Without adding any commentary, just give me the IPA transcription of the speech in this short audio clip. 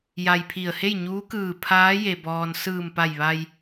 ja˧jpʰi˧˩ə̯ he˥˨jɲuː˧˥kɯː˧˩ pʰaː˧˥je˩bɔː˩n sɯː˧˩mpa˧˩j ʋa˧j

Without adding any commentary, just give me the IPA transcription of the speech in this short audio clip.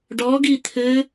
ɖɔɡi t̪ʰɘ

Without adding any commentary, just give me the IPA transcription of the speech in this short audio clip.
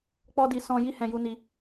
k͡pɔ˦di˧ sɔ̃˧ ji˦hɛ̃˧ju˧ni˧

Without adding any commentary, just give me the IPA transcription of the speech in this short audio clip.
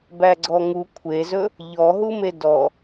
bæɡ͡ǀɔŋu kʷʰezɵ | ʎɔɦume dɔ

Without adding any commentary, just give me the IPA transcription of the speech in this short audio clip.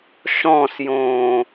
ʃɔ̃sjõː

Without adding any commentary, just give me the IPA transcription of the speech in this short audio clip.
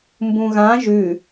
mbũɣã ʒʉ

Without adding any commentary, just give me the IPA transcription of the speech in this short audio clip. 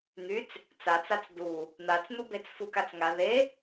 n̪yt͡s | t͡sat͡sat͡s du | n̪at͡sn̪ubet͡s fukat͡sŋa ðe

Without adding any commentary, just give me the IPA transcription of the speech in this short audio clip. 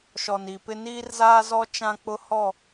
ʃɔ˨ni˨pɪ˦ niː˦rzaː˦zɔ˦ t͡ʃã˦k͡pʊ˦hɔ˦˨

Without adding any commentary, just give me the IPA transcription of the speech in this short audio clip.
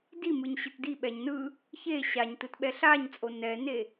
dimɯɲ ɕɯtdiɓɛɲ nɯ | çe ɕaɲtɯt ɓɛɬaɲt͡sʼo nɛne

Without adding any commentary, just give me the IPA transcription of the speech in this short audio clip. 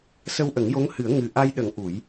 sə˧wʔə˨˩˦ŋjo˧˥ŋhɨ˨˩˦ə̯ ŋɨ˨˩ʔa˧jɗə˨˩˦ŋ ʔu˨˩˦j

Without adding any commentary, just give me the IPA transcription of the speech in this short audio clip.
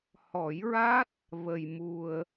hɔ˨˩˦jɹa˦˥t̚ | və˨˩jmu˨˩ə̯

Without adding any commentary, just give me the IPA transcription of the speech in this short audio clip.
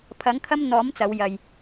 pʰɐ˨˥ŋkʰɐ˥mn̪ɔː˨˥m t͡sɐ˨˧wjɐ˨j

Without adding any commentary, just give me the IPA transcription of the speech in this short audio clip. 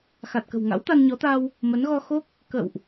xa˨˩t̚kə̤˨˩w ŋa̰˧˥wt̪a˧nɲɔ˨˦t̪a˧w | mə˨˦nɣɔ˧xo˦˥k̚ | kə̰˧˨wʔ

